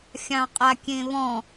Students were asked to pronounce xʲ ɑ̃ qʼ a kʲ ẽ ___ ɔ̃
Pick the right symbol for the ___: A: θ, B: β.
B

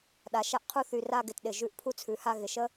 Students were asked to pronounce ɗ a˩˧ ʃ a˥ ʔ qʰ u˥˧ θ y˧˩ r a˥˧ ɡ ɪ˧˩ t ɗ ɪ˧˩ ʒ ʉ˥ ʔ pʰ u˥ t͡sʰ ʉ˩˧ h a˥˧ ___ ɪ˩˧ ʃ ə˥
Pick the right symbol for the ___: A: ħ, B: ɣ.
B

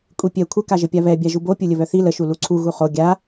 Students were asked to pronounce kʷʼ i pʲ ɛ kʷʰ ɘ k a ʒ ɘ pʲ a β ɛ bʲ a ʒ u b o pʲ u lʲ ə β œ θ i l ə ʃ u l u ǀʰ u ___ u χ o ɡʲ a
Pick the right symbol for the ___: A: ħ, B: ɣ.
B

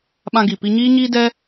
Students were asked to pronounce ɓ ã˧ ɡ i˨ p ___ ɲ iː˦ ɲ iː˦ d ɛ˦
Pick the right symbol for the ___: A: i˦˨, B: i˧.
B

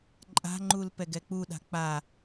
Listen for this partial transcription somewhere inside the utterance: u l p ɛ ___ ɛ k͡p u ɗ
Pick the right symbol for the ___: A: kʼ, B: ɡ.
B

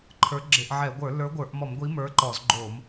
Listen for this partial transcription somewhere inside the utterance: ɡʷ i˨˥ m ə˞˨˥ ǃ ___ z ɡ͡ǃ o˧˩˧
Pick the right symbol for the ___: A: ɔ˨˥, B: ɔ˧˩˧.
B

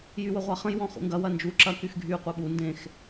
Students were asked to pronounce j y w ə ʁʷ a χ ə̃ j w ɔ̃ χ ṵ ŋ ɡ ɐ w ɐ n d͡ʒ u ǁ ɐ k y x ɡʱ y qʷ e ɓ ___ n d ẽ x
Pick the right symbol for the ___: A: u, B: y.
A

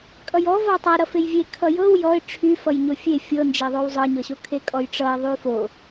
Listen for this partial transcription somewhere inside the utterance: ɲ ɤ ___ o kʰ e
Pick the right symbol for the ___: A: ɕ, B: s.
A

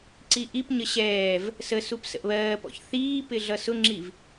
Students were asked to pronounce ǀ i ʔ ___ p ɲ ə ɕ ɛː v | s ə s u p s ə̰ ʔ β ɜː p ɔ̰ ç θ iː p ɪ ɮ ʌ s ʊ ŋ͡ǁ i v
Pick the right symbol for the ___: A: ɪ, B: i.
B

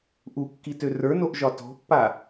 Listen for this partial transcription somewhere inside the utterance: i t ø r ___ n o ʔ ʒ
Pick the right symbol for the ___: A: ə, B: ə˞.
B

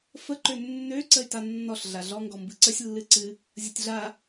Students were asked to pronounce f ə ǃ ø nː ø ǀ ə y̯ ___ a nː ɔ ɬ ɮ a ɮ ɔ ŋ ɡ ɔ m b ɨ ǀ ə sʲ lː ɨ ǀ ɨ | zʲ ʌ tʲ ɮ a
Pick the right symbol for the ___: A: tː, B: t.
B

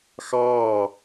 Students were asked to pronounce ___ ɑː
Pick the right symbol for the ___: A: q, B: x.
B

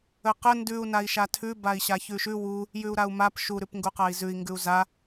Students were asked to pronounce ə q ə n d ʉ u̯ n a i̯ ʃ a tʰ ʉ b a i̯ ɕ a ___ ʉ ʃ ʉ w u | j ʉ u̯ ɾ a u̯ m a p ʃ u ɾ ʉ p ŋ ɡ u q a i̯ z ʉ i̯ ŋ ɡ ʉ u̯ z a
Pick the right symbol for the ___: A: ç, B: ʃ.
A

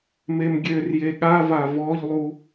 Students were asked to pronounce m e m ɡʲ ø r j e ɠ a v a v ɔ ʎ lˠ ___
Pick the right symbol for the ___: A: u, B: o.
A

